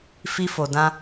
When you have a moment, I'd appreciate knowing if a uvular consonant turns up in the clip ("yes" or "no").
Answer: no